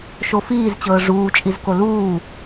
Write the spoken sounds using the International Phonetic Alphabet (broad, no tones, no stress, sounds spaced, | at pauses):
ʃ o f iː z t͡ɕ ɤː ʐ uː t͡ʃʼ i z k o l uː